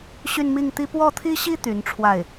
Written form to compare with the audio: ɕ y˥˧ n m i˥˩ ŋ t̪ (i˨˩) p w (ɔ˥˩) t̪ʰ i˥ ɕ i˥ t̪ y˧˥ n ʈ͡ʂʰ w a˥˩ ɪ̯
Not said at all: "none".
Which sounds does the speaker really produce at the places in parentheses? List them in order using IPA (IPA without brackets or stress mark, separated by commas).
i˥, ɔ˥˩